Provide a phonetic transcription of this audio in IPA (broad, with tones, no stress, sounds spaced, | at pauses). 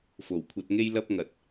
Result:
f o˨˩ w kʷʰ ɐ˧ t̚ ŋ e˥ j l ɐ˥ p̚ ŋ ɐ˨ t̚